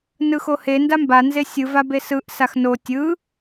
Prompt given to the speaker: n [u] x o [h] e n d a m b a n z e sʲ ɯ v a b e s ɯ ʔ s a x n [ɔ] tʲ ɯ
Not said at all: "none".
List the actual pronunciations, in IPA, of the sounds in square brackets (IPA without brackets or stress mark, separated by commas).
ɯ, h, o